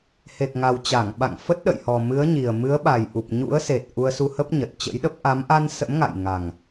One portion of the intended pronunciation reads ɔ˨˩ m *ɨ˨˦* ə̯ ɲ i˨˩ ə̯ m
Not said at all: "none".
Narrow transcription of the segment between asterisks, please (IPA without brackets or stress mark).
ɨ˨˦